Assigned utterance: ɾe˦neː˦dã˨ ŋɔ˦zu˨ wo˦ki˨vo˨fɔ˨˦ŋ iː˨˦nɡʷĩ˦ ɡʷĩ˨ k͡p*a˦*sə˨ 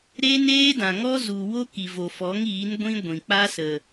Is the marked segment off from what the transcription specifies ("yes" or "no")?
no